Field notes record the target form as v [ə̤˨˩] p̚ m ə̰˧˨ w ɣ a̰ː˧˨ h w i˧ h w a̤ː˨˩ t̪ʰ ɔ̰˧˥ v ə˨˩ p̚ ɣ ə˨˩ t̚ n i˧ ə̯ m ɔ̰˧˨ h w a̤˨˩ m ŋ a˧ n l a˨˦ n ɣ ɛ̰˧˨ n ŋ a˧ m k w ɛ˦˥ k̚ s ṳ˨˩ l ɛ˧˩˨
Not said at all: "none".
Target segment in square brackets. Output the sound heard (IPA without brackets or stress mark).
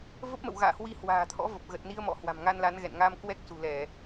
ə˦˥